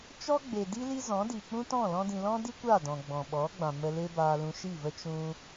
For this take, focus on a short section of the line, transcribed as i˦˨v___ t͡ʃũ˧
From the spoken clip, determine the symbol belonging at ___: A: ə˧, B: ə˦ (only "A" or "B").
B